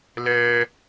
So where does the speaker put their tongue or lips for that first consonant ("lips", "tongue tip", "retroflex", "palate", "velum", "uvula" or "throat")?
tongue tip